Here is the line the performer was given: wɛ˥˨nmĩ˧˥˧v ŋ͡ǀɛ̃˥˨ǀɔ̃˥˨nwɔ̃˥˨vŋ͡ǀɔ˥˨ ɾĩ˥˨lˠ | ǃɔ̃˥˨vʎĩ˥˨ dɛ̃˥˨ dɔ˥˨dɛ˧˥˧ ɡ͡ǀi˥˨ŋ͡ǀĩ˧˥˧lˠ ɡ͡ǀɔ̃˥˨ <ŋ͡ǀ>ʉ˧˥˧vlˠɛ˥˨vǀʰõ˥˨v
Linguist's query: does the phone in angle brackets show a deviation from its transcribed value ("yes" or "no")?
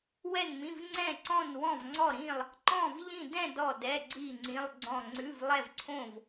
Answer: no